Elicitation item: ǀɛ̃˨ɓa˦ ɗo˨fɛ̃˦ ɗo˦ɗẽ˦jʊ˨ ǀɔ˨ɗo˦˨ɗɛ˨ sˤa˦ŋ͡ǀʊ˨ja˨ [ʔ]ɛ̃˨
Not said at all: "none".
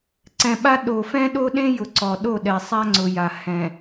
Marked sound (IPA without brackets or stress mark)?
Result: h